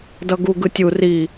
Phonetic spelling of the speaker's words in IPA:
d ʌ ɡ u ɡ ɯ tʲ u r i

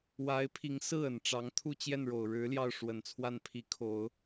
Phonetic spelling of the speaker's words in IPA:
w a˧˥ ɪ̯ pʰ i˧˥ ŋ s ɹ̩˥˩ ə˨˩ n ʈ͡ʂ ɑ˧˥ ŋ t̪ʰ u˥˧ t͡ɕ j ɛ˥˩ n ɻ o˨˩ ʊ̯ ɻ ɻ̩˧˥ l j ɑ˥˩ ʊ̯ ʂ w ə˨˩ n t͡sʰ w a˥˩ n pʰ i˧˥ kʰ o˨˩˦ ʊ̯

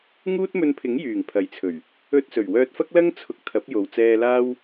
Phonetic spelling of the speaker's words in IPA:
ŋ uː˥ t̚ m ɵ˧ n pʰ ɪ˨˥ ŋ j yː˨˩ ŋ pʰ ɐ˨˥ j t͡sʰ ɵ˨˩ ɥ | ɵ˧ t̚ s ɵ˨˩ ɥ w œː˧ t̚ f ɐ˥ k̚ l ɐ˥ ŋ t͡sʰ ʊ˨˥ k̚ t̪ʰ ɐ˨˥ p̚ j o˨ w t͡s ɛː˧ l aː˥ w

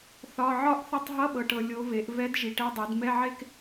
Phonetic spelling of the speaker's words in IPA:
θ ɒ˧˥˧ ʕ ɒ˥˧ ʔ θ ə˥˧ tˤ ɦ ʌ˧˥˧ ɓ ɤ˨ ʈ ɤ˨ lʲ o˧˥ v e˩˥ ʔ v ɛ˧˥ d ʒ i˨ ʈ ɛ˧˥˧ dˤ e˩˥ d m ɛ˧˥˧ ʕ e˥˧ k

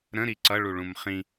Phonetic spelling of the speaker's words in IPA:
ɾ ə̃ ɾ i ǀ ʌ ɭ u ɭ ũ m χ ĩ

